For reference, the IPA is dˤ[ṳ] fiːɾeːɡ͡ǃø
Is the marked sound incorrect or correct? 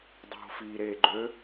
correct